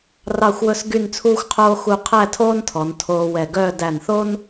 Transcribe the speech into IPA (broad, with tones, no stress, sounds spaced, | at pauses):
r ɑ˥˧ xʷ w ɵ˥˧ s ɡ y˥˧ n t͡sʰ uː˥ xʷ qʰ oː˥ x u˥ qʰ æ˥˧ tʰ oː˥ n tʰ ɔ˩˧ n tʰ oː˧ w ɛ˧˩ ɡ œː˥˧ d æ˧˩ n θ o˥ n